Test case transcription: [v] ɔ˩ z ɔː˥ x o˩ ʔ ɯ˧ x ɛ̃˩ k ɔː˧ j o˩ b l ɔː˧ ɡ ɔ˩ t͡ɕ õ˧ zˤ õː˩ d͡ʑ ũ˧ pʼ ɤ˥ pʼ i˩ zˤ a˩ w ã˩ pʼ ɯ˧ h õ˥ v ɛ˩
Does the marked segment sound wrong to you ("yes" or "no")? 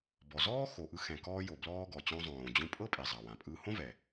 yes